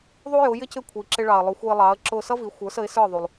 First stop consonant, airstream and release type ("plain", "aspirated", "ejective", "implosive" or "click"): plain